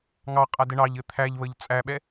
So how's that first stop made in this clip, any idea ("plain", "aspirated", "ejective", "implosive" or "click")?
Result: ejective